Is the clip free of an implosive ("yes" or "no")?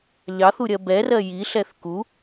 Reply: yes